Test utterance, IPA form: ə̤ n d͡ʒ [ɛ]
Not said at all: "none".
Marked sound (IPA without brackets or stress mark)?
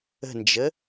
ə